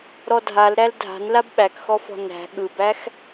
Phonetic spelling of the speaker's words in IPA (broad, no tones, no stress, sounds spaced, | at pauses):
ɾ ɔ dʱ a l ɾ æ l dʱ a̤ n l a b ɓ æ k x ɔ f ɔ̤ n æ̤ ɠ ɯ b æ x